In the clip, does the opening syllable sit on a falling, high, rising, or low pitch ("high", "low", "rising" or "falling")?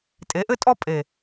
rising